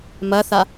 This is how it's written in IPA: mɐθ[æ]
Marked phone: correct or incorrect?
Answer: incorrect: a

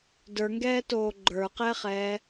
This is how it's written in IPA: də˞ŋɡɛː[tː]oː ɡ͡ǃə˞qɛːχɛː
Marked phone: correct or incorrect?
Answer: incorrect: t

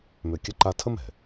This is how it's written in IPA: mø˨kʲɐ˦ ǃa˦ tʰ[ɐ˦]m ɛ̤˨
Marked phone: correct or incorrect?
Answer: incorrect: ə˦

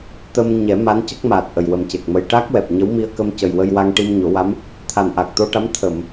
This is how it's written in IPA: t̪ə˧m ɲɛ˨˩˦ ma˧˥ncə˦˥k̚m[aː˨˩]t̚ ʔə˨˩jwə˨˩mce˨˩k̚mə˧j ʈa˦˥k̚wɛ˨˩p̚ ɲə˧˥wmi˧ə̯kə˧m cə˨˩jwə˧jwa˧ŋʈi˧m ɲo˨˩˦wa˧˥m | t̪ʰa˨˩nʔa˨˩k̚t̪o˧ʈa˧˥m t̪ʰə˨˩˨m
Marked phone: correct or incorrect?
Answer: correct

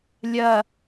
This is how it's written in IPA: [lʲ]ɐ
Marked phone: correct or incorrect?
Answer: correct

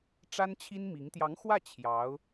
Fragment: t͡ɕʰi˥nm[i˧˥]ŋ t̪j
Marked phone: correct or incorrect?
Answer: correct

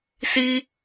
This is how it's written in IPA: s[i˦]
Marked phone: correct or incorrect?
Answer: correct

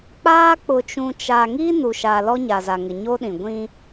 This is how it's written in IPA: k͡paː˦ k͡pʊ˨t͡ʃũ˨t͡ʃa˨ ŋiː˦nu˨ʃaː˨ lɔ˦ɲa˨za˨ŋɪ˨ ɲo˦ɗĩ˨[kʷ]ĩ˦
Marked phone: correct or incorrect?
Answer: incorrect: ɡʷ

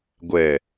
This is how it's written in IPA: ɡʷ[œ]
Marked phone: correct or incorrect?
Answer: incorrect: ɛ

